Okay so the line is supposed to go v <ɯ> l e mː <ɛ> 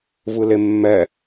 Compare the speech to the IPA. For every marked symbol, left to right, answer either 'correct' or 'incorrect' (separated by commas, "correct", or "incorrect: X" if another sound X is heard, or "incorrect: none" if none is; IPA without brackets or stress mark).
correct, correct